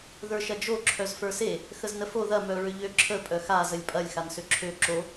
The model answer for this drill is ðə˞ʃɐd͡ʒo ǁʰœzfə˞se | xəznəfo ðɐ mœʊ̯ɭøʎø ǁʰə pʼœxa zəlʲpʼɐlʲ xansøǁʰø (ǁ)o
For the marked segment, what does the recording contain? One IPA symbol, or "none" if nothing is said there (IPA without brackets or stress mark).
ǁ